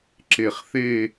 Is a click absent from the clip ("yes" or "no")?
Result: no